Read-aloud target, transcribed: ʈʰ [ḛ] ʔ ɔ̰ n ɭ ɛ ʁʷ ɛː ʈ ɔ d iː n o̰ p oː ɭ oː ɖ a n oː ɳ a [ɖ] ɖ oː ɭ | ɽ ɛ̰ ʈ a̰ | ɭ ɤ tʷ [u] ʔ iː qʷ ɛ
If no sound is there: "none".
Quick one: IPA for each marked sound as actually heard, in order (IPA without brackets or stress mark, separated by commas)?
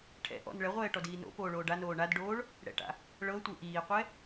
ɛ̰, d, ɯ